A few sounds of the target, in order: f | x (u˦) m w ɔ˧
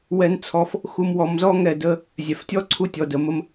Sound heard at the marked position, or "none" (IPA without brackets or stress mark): u˧